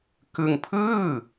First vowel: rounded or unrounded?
unrounded